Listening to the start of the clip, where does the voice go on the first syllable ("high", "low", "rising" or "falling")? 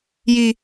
high